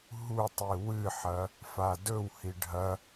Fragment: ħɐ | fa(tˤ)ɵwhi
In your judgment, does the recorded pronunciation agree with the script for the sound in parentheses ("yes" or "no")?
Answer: no